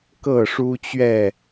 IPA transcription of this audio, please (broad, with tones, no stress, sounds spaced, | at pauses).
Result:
k ɤ˥˨ ʂ u˦ t͡ɕ ɥ ɛ˥˨